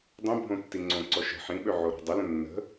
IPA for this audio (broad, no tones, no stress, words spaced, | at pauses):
dˤə̃bʱõ tːiŋ͡ǀõǀɔ ʃə̤ ħĩɓø ʕoɾo̤dˤələ̃ nːə̤